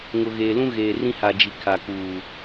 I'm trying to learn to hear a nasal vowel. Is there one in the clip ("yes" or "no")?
yes